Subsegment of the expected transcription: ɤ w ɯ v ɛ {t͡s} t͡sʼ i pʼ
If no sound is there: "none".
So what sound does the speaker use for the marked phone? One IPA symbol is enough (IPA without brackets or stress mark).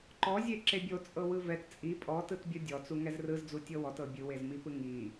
t